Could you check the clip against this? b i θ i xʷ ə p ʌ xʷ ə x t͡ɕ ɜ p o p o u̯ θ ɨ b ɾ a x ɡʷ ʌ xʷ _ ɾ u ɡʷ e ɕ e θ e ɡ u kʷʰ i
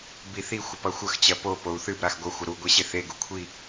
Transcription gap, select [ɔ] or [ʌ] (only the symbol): ʌ